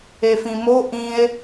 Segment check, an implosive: absent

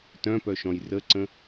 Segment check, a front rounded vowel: present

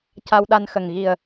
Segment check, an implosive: present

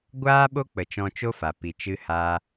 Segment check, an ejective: absent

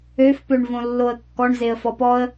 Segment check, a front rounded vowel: present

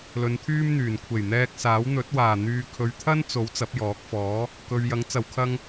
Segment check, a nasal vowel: absent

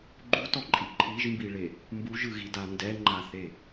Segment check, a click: present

